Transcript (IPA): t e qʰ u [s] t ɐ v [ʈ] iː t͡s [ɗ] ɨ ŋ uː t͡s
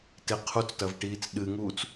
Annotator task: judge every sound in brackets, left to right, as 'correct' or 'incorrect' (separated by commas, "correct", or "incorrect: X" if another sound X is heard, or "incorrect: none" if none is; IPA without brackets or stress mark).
incorrect: t͡s, correct, correct